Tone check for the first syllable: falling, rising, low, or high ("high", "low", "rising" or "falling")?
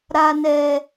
high